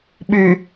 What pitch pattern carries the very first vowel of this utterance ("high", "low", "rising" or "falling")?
low